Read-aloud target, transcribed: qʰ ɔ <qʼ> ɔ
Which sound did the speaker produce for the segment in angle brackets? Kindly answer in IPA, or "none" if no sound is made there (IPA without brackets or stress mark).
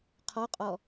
qʼ